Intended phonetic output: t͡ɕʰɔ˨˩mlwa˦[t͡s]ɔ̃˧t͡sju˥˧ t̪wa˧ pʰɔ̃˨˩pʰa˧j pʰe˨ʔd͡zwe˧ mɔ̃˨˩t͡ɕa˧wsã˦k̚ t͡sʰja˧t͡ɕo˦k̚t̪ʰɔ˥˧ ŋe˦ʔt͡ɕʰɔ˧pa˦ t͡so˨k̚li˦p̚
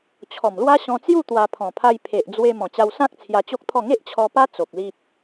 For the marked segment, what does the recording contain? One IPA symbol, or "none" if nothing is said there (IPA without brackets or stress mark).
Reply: ɕ